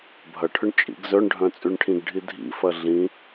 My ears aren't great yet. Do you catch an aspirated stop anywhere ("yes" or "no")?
yes